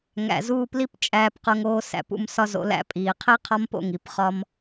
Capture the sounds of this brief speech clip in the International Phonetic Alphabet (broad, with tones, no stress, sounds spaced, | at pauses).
ŋ æ̰˨ z uː˧ p l i˦ p t͡ʃʼ æː˧ p q o˧ ŋ oː˧ s æ̰˨˦ p ṵ˧ m s ɒ˦ z o̰˧ l æ̰˧ pʼ iː˨ qʰ i˦ qʰ ɒ˦ m p o̰˦˨ ŋ i˧ p χ ɒ˦ m